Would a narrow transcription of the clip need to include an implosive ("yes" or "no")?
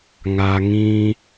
no